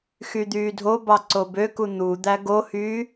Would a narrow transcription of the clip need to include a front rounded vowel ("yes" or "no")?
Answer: yes